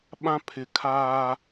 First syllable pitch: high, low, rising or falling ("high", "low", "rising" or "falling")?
high